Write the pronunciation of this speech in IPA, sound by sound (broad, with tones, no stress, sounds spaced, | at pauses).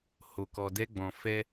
h o˧ k ɔ˧ d ɛ˦ ɡ͡b ɔ̃˧ f ɛ˦